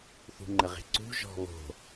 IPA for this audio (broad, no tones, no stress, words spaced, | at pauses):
θṳŋ͡ǃəʁe̤ǀṳ ʒɔ̤βo̤